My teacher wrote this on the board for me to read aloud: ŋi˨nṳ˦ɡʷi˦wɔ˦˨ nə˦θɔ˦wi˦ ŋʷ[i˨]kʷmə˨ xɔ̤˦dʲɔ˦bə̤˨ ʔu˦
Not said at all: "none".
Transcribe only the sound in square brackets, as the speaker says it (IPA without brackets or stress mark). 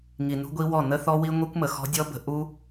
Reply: i˦